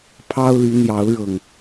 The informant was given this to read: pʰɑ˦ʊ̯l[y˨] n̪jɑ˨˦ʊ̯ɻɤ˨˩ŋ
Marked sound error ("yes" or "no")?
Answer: yes